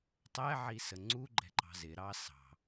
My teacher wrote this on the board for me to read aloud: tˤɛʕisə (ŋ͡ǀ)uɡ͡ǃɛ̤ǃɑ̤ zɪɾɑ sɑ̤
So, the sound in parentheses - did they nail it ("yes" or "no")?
yes